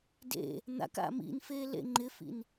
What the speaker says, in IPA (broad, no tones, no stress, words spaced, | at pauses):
dḛ | n̪a̰k a̰mḭn feːlḛŋ͡ǃɪfḭn